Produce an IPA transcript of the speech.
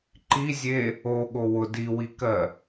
ǃizʲe | oɠo wʊ diwikɜ

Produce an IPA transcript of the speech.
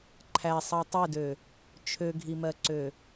ǃʰæsˤɜ tˤedø | t͡ʃʰøɡʱimɜǀø

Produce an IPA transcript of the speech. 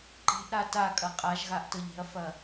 ǃe̤ʔɾa takʼɐ qʼaʒɣaʔtɤʎ e̤ɐ̯fɐ

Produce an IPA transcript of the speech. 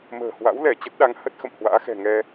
mə̤ː˨˩hwa̰˧˥wlɛ˧˩ t͡ɕə˦˥t̚ɗa˨˦ŋ hə˦˥t̚xə̰˧˨m hwa̰ː˧˥xɛ̤˨˩ ŋɛ˧

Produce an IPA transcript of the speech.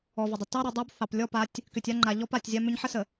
ɔ˨və˨dˤə˨ tɑ˦ ɾʏ˨dˤɑ˦b θɑ˨plʲɔ˦pa˨˦tʲ | kʏ˨tʲa˦ŋ͡ǃa˨ ʎɔ˦pa˨tʲ zʲa˦mʏ˦ɲ ħə˦sə˨

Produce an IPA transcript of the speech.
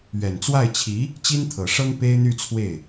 ɥɛ˨˩nt͡swa˥˩ɪ̯t͡ɕʰi˧˥ | t͡ɕi˥nt̪ʰɤ˨˩ʂɤ˥ŋ pe˥ɪ̯n̪y˥˧t͡sʰwe˥˩ɪ̯

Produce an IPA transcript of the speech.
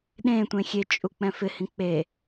ɗẽ tʷẽxʲet͡ʃʼu k͡pɛ̃fɪhĩ k͡pe

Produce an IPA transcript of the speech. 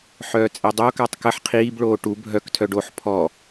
ħœːt͡sʼedˤokatˤ kəħ qʰiːbɭoː ʈu bʱœktʰœɖ oħ pʰɔ

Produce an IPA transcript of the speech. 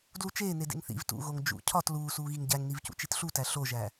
dlut͡ʃeː nedḛŋθḭv tṵɣoŋ d͡ʒṵ cʰɒt luːsuːɣiŋ ɟæŋnivcṵ t͡ʃitɬutæ ɬoʒæ

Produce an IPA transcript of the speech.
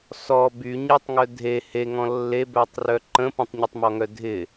sɔ by ɲetˤŋœ dʱe heŋɔ̃ lːebœtˤrœ ǃə̃ pə̃tˤɲɪtˤmɔŋœ dʱɪ

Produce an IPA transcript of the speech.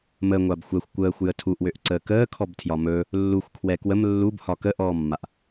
məŋʷab xʷɛxʷ kʷəːxʷjə tʰuʔwøʔǀəː kəːkʰɔbtʰjɒ mɵ | lːuxʷkʰwɛ kwəm lːubhɒ kəʔɔːmːaʔ

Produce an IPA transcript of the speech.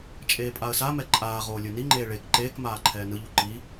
t͡ʃʼeːpʼaə̯samɛ ǃʼaːʁoː lʲɯniŋ͡ǃeː ɭek ǃeːkmaː ǃʰɛːnɯʎu ǃi

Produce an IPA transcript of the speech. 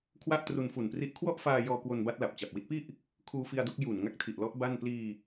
kʰwa˥˩ʔtru˧n fu˨˩npri˦˥ʔ kʰwɔ˥˩ʔfaː˧jɔː˧ kwo˧nba˦˥t̚la˨˩p̚ t͡ɕa˨˩p̚wi˦˥t̚pi˥˩ʔ | kʰuː˧fi˧a̯do˦˥k̚ ju˨˩n ŋa˦˥k̚tʰi˨˩ʔlɔ˦˥ʔ ba˥˩n pliː˧

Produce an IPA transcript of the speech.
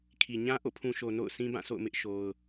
kʰi˨ ɲã˦ ʔo̰˦˨pʰũ˨ʃo˨ no̰˦˨ʊ̯ sĩ˦bã˦˨so̰˦˨ʊ̯ mɪ˦ʔ ʃo˦ʊ̯

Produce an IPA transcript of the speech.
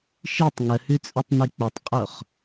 ʃitˤ ŋəhʉt͡sʼɵtˤni k͡pɵtˤqʼoχ

